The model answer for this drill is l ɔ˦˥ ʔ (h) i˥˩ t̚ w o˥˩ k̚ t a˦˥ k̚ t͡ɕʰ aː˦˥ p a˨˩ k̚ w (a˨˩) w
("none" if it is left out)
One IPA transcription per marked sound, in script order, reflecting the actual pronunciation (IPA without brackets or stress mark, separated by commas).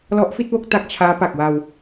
f, a˧